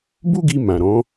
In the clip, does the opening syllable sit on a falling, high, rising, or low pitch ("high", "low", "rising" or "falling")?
high